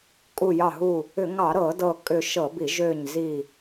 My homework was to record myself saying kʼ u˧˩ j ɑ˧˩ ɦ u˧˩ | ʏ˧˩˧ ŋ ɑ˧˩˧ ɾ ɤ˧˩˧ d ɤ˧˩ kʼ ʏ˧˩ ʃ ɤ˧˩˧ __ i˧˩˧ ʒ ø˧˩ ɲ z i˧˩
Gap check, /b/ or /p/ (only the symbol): b